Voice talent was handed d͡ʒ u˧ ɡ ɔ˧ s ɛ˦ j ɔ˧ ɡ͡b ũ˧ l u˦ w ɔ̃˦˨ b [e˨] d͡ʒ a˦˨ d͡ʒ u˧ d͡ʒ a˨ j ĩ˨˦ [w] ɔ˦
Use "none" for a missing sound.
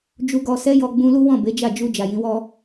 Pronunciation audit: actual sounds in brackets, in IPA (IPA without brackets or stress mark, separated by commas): e˨˦, w